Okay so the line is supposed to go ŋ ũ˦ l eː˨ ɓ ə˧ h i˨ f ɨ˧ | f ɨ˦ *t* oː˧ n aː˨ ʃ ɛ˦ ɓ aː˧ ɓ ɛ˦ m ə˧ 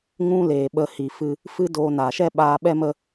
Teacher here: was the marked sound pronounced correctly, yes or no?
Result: no